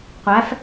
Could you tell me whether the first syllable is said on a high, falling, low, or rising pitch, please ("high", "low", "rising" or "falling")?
rising